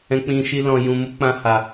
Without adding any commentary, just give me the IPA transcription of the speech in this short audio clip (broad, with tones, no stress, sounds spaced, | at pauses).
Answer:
ɛ̃˦ k͡p ĩ˦ ʃ i˦ l ɔ̃˦ j ũ˦ m u˦ k͡p ã˦ h a˧